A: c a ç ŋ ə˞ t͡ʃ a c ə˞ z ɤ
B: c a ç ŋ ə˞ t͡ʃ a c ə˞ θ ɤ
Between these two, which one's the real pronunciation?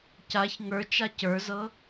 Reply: A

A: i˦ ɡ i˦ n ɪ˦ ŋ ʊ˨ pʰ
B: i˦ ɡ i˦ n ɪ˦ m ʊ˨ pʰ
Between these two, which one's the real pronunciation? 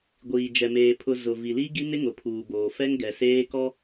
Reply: A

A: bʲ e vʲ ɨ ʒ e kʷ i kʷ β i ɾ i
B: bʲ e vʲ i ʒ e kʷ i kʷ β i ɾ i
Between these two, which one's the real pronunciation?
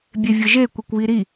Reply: A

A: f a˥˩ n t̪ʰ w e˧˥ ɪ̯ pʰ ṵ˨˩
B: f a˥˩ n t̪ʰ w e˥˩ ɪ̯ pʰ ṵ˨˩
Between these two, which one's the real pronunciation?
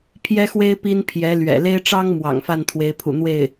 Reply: A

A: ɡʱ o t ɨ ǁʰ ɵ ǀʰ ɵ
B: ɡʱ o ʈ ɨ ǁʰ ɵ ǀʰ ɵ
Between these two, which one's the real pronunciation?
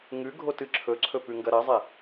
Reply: A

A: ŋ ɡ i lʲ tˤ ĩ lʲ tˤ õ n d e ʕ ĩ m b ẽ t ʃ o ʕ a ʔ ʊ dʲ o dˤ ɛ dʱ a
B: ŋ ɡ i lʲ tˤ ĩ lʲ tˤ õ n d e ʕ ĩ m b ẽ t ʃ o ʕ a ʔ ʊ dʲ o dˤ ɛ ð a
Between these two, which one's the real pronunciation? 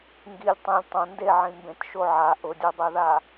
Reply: B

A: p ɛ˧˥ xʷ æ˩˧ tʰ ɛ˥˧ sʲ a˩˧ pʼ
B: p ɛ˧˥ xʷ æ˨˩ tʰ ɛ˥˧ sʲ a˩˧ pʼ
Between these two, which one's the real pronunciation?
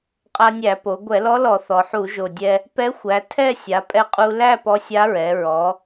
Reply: A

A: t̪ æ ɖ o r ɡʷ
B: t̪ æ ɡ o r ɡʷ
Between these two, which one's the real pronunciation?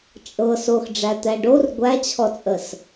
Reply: A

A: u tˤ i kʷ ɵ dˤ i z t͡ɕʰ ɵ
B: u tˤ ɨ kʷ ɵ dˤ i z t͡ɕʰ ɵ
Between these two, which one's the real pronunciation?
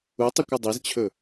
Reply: A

